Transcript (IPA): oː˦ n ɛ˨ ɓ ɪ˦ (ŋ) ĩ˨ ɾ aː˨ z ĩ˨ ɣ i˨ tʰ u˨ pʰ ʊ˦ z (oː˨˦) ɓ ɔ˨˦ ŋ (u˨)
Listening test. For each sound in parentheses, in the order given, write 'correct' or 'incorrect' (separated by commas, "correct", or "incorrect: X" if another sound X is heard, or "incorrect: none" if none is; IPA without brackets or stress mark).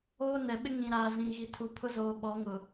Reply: correct, incorrect: oː˨, incorrect: ʊ˨